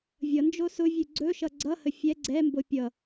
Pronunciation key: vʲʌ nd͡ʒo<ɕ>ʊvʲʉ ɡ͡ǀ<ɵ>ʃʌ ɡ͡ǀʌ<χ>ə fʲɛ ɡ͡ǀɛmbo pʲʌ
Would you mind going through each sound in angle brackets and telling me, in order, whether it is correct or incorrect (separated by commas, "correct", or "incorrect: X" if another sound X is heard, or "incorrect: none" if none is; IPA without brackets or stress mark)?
incorrect: s, correct, incorrect: h